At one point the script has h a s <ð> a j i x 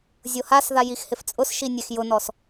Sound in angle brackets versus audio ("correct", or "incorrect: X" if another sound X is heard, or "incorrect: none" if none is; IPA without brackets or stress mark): correct